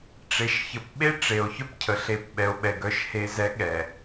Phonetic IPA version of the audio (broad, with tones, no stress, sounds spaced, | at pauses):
ʈ͡ʂ e˨ ʃ ç ə˨ p ɓ e˦ ʈ͡ʂ e˨ o̯ ç œ˦ p cʰ ə˨ ɬ e˨ p ɓ ɛ˨ o̯ ɓ ɛ˨ ɡ œ˨ ʃ h e˨ z ɛ˨˦ ɠ ɛ˨